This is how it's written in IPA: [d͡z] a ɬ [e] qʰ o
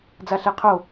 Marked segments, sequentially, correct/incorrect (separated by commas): correct, incorrect